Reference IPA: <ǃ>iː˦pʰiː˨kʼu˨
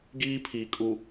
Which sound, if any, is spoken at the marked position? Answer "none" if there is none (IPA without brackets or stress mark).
ɡ